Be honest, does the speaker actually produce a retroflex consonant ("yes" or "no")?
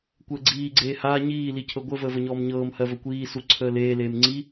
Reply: no